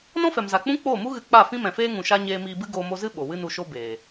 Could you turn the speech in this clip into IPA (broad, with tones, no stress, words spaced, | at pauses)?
nɔ̃˦fɛ˨mza˨k͡pũ˦ k͡poː˦˨mu˦ɣɨ˧ k͡pa˦˨fĩ˦mɛ̃˨feː˦ ŋũ˨ʃa˧ ɲeː˧miː˧bɨ˦ ɡoː˧mo˧zɨ˦ ɓo˨wɨ˦nu˧ʃo˦ beː˨